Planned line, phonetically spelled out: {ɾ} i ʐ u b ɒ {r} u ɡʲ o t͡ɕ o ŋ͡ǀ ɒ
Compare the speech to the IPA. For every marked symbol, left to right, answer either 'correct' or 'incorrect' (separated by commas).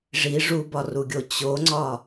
incorrect, correct